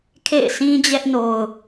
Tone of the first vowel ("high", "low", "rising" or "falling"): falling